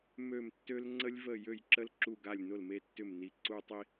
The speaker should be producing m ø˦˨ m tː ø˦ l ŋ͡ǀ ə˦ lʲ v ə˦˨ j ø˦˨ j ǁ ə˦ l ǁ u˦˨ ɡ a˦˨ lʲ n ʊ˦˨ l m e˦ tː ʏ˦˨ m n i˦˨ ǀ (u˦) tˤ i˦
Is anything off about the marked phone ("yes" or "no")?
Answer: no